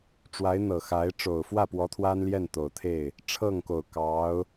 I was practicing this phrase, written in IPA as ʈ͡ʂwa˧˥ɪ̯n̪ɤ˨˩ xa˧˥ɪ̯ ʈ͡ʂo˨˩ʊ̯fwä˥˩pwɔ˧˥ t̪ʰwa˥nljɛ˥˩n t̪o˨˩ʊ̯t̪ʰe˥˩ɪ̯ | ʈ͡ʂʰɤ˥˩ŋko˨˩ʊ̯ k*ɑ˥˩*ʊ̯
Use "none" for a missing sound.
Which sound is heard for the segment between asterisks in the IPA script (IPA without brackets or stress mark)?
ɑ˧˥